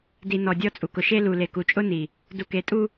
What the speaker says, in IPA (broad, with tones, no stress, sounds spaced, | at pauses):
d i˨ n ɔ˨ dʲ ɔ˦ t͡sʼ u˨ k ʊ˨ ʃ e˦ l u˨ l e˨ k u˨ t͡ʃʼ ʊ˦ n i˨ | d u˨ k e˨ tʼ u˦